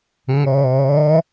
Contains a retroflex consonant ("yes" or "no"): no